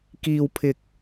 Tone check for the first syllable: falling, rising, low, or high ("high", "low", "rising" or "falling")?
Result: low